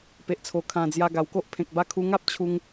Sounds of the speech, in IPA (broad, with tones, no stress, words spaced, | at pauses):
pe˨ʔt͡sʰo˨˩ kʰã˨˩ d͡zja˧ɡa˨˩wko˦ʔ pʰẽ˨k̚ba˥˧ kʰu˧ŋa˦p̚ t͡ɕʰu˧ŋ